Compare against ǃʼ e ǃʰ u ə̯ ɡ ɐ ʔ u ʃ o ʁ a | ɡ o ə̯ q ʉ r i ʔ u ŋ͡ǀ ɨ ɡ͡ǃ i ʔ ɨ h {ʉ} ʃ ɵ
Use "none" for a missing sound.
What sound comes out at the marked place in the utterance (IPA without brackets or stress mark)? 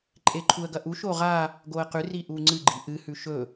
ʉ